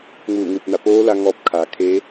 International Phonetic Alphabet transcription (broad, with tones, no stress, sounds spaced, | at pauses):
ŋ uː˧˩ ŋ ɯː˧˩ p̚ n a˧˩ p oː˧˥ l a˧ ŋ ɔː˧ p̚ kʰ aː˩˧ kʰ eː˧˥